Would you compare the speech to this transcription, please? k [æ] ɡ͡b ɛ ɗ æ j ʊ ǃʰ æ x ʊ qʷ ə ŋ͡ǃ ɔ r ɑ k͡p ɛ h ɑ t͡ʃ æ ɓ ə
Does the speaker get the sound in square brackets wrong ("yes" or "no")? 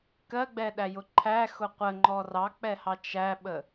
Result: yes